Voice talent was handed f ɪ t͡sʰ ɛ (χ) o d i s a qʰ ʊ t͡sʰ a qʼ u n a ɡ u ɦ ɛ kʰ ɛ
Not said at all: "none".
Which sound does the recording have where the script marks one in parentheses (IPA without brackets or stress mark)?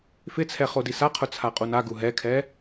χ